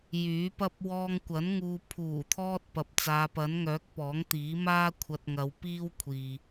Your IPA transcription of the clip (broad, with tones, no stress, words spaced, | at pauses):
jyː˨˥pɐ˥p̚ wɔː˧ŋkʷɐ˨˥nŋuː˨ pʰuː˨˩t̪ʰɔː˧t̚ pɐ˨p̚t͡saː˨˧pɐ˨˥nŋœː˨˥k̚ pɔː˨˥ŋt̪iː˨˥maː˥ kʷʰɐ˧t̚ŋɐ˨˧w piː˥wkʷʰiː˨